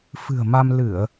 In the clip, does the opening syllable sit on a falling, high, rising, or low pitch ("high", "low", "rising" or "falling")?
low